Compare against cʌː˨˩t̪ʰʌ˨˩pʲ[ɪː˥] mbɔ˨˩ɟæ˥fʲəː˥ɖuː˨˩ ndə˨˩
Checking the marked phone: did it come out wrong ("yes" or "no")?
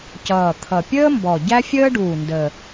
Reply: yes